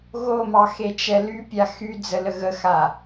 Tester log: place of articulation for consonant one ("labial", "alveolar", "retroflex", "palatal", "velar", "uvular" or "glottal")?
velar